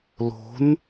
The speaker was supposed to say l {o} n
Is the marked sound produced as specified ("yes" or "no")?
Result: no